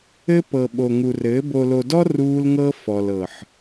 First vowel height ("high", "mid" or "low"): mid